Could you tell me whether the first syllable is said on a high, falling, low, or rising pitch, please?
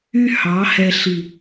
high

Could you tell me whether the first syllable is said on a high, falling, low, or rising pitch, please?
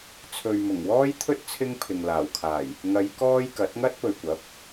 low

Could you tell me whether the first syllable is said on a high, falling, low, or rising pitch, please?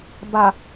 low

